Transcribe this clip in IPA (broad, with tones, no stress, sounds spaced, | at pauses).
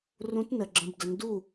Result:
r ũ˨˥ t n ə˩ ɡ͡ǁ ə̃˩˧˩ b d ə˩˧ n d u˥˩